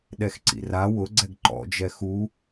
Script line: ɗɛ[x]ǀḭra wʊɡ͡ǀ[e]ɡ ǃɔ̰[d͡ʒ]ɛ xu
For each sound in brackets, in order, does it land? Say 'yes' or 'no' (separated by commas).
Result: yes, no, yes